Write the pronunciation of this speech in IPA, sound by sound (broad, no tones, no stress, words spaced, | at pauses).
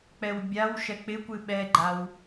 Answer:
k͡pɛwbʲawʃɛ k͡pɪkʷɨ ɓɛɡ͡ǃaw